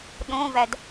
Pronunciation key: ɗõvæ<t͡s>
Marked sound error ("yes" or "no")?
yes